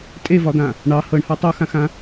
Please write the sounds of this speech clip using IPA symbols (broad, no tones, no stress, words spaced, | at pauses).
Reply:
tʼevɒd̪ã | ɳɑ hɤɳhɑ tˤuxãxã